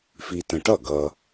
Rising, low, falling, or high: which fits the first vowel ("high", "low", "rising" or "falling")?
low